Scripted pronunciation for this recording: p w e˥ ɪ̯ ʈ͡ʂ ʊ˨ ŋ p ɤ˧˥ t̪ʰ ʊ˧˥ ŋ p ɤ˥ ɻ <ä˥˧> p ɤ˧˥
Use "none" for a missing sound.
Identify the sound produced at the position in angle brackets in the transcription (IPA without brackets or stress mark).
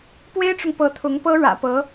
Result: ä̰˨˩